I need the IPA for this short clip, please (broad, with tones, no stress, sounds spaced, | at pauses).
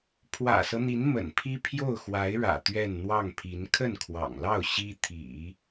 pʰ w ä̰˨˩ s ɤ˦ n̪ i˧˥ n m ə̰˨˩ n pʰ i˥ pʰ j o˥˩ ʊ̯ x w a˧˥ ɪ̯ ɻ ä̰˨˩ t̪ ɥ ɛ˥˧ n n̪ w ɑ˥˩ ŋ pʰ i˧˥ n kʰ ə˥˩ n kʰ w ɑ̰˨˩ ŋ l ɑ˥˩ ʊ̯ ɕ i˥ t̪ʰ ḭ˨˩˦